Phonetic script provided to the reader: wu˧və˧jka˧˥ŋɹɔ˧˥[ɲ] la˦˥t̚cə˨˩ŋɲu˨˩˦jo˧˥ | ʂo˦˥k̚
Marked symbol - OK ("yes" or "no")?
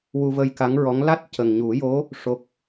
no